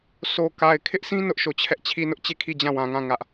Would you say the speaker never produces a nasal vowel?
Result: no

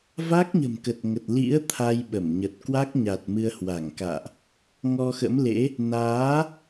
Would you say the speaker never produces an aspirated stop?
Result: no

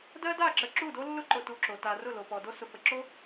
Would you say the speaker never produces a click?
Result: no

